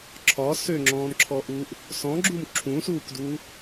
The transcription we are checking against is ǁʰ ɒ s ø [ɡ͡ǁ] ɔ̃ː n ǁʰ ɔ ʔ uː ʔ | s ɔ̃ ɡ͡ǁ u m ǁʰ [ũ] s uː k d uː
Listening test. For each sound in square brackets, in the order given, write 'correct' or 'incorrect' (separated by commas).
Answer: incorrect, correct